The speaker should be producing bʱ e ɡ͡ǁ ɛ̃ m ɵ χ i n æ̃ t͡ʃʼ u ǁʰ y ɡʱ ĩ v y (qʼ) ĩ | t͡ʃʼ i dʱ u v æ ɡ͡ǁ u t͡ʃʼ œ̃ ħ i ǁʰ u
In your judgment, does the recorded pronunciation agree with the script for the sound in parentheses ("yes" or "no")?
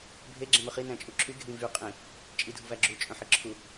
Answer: yes